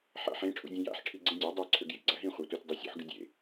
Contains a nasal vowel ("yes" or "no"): yes